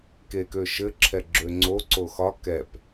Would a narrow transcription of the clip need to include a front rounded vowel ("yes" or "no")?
yes